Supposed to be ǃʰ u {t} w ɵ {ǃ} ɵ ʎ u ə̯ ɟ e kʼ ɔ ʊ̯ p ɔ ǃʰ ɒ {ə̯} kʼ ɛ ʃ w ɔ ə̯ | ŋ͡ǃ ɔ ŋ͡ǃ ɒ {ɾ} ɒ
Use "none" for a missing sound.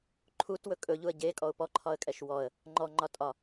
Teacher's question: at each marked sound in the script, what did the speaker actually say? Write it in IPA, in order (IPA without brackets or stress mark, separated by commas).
t, kʼ, ə̯, tʼ